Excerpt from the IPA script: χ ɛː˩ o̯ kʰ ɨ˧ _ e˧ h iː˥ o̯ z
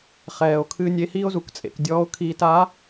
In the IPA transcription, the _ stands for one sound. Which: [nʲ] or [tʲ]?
nʲ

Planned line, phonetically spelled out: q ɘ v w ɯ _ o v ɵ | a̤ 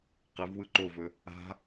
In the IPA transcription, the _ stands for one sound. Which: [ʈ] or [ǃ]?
ǃ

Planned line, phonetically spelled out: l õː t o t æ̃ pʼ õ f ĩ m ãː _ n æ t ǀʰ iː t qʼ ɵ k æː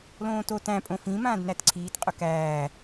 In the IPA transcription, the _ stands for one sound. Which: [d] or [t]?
d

